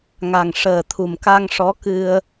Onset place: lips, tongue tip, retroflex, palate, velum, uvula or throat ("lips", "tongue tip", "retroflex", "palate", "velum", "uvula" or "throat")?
velum